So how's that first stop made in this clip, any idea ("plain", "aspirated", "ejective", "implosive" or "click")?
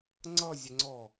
click